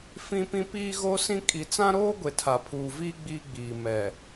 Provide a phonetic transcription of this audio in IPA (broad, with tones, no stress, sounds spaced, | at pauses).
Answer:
f ĩ˦ p ĩ˦ p iː˦ ɣ o˦ s ĩ˦ kʼ i˨ t͡s ã˦ ɾ oː˦ ɡʷ e˨ tʰ a˨ pʰ uː˨ v iː˦ ɡ͡b iː˦ ɡ͡b iː˨ m ɛ˨